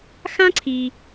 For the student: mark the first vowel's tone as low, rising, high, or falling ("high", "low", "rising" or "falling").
high